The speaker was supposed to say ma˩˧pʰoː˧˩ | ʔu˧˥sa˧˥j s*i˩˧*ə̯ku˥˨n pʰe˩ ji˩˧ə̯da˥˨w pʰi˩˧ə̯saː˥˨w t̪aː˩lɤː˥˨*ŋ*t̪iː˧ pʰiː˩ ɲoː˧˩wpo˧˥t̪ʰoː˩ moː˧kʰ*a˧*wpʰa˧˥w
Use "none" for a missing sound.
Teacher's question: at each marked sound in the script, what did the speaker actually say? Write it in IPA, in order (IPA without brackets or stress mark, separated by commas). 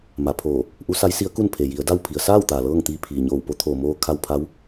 i˧˥, ŋ, a˧